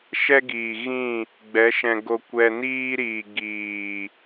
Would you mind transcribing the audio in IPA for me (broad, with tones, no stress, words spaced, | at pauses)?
ʃɛ˦ɡiː˨ɣĩ˦˨ | ɡ͡bɛ˨˦ʃɛ̃˧ɡo˧ kʷɛ˧niː˦ɾiː˨ ɡiː˨